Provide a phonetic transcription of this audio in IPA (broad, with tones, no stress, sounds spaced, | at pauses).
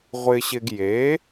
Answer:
ʁʷ ɪ˧ ɕ ɪ˧ ɡ j e˩˥